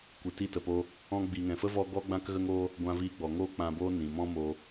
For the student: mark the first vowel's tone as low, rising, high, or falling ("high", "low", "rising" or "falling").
low